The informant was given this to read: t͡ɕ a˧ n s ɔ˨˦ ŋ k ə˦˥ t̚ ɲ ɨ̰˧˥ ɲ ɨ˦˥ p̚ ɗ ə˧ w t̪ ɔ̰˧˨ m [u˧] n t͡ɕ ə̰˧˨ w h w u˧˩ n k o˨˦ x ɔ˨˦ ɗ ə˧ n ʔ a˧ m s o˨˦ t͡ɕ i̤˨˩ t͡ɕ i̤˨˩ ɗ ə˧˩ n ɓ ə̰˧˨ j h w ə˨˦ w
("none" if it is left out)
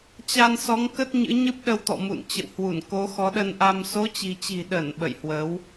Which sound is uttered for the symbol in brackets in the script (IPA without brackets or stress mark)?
ṵ˧˨